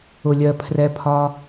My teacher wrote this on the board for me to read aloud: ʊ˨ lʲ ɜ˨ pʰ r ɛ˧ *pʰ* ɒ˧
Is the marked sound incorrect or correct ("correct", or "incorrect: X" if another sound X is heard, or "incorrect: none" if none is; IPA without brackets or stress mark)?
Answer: correct